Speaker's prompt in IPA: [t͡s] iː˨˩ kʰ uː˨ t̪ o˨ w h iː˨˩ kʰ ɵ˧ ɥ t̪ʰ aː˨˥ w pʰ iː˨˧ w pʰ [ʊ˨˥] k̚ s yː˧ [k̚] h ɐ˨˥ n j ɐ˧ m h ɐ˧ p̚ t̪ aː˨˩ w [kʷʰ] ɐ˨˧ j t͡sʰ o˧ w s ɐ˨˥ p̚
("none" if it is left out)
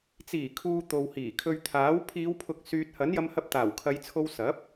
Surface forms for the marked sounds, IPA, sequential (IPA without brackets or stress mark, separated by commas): t͡s, ʊ˨˥, t̚, kʰ